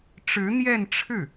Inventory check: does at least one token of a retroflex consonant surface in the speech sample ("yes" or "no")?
yes